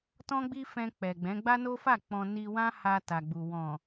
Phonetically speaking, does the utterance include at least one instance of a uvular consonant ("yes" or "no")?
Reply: no